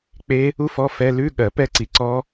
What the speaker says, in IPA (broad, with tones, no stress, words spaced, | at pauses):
k͡pe˦˥ | u˦˥fɔ˧˥˧ fɛ˧˥˧ lʉ˧˥˧ɠɜ˨˩˦ pɛ˥˨ǀi˨˩˦ ǀɔ˦˥